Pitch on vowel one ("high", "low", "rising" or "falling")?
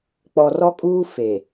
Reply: low